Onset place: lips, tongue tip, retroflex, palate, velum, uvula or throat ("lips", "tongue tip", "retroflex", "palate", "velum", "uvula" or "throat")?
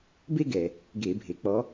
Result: lips